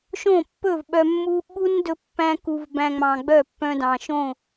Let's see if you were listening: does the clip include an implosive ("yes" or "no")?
yes